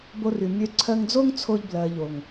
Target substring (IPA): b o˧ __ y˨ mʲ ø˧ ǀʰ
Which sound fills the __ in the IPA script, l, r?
r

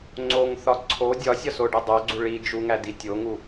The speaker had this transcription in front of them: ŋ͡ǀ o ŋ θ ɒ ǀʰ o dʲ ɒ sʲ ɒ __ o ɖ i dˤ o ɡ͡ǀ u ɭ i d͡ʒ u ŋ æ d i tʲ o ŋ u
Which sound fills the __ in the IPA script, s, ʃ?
s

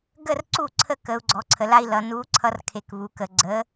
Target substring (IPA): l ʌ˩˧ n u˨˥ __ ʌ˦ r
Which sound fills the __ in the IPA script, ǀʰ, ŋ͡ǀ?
ǀʰ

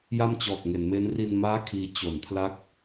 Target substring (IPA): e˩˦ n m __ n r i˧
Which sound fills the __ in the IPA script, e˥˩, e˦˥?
e˦˥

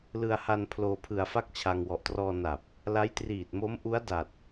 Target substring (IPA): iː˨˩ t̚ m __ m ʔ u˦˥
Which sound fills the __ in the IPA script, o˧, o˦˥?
o˦˥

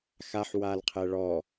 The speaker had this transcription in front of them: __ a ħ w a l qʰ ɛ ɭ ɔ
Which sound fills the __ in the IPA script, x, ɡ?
x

